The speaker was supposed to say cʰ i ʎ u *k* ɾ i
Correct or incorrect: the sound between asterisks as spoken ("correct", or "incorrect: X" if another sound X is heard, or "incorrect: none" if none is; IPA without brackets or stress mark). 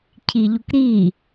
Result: correct